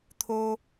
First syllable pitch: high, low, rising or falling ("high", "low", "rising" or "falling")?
high